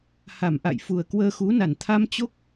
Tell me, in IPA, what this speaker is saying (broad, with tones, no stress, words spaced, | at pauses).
ha˧˩mʔa̰˧˨jfu˨˩ə̯ kwəː˧xu˨˦na˧˩n t̪ʰa˧mt͡ɕo˦˥k̚